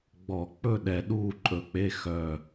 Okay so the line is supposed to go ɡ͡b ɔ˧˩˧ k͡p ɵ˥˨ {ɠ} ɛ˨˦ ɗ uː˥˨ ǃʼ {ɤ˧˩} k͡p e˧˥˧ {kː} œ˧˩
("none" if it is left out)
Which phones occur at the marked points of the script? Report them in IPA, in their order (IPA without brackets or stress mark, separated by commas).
ɗ, ɵ˧˩, x